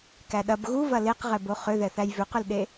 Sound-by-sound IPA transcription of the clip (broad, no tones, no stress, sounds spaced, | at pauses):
k æ ɗ ɐ b ɣ u v ɐ l e q ʁ ɛ b o χ ʏ ð ɛ θ æ j v ʏ q ʏ l ɗ e